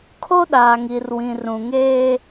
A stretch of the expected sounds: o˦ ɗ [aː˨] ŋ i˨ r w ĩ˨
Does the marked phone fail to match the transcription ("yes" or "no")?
no